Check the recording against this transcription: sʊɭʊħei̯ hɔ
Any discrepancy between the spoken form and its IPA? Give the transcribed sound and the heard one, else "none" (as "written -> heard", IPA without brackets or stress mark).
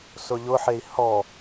ɭ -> ʎ